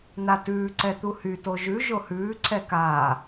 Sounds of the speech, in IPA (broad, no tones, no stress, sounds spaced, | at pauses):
n̪ a t ʉː ǀ ɛ t̪ u h y t o ʒ ʉ ʒ o h ʉː ǀʰ ɛ k aː